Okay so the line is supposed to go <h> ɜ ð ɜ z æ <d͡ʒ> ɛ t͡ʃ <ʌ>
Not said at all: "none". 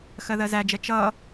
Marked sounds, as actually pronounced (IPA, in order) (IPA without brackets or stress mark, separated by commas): x, d͡ʒ, ʌ